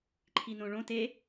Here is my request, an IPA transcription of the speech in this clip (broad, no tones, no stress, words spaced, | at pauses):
ǃʰinõɭõ te